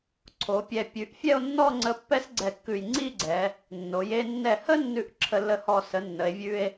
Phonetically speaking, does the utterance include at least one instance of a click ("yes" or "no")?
yes